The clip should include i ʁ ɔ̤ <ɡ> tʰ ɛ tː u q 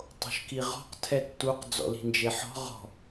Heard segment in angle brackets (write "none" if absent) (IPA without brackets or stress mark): q